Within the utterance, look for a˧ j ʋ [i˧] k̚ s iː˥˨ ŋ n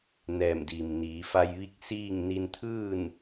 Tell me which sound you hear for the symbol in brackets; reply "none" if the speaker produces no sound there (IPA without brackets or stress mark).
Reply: i˧